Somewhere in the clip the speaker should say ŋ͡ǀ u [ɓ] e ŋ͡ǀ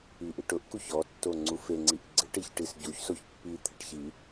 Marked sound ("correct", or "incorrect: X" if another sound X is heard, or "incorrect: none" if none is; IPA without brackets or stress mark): incorrect: f